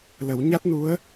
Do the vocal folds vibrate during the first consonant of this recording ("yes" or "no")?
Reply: yes